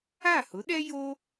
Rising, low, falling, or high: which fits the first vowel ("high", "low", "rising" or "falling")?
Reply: falling